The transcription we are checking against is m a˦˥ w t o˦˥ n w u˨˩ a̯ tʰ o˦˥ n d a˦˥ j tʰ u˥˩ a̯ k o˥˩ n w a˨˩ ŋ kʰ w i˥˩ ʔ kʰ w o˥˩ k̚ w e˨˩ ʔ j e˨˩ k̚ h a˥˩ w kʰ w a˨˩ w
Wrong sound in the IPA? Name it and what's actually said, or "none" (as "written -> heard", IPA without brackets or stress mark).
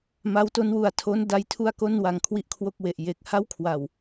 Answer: none